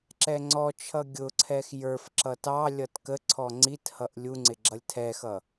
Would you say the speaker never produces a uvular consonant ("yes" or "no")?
yes